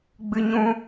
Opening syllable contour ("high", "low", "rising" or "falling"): high